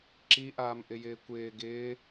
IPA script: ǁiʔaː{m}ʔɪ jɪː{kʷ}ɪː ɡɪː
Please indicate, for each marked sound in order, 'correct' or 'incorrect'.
correct, correct

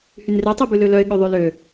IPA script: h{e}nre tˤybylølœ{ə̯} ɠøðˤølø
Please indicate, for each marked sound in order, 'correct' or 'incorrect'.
incorrect: y, incorrect: ɪ̯

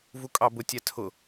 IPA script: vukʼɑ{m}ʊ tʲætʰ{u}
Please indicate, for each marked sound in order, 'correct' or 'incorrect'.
incorrect: b, incorrect: ʊ

